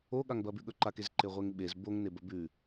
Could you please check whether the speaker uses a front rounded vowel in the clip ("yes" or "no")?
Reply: no